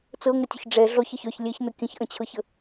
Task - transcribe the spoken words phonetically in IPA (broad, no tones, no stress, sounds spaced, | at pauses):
t͡s ɤ ŋ ə tʲ ʊ ç ɖ͡ʐ ɛ ɮ ɔ ç ʌ ç œ ç lʲ ɛ ç n ʊ kʲ ə̃ ç ʔ ə̃ t͡ɕʰ ɤ ç ə